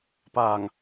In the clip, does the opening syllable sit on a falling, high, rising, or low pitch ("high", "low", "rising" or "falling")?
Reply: low